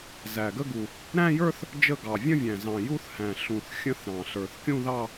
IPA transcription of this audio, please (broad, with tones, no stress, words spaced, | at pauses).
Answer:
zæ˨˩ɡə˥˧ɡu˨˩ | ɾæ̃˥˧jə˞˥˧θ | d͡ʒə˥˧ɡɑ˨˩ vʲə̃˥˧vʲæ̃˨˩ zɑ̃˨˩ju˥˧θhæ̃˨˩ ɬũ˨˩θ xʲə̃˥˧θɾɑ̃˨˩ ɬə˞˨˩θkʲũ˥˧ðɑ˥˧